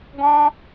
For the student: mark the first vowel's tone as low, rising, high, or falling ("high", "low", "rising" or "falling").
high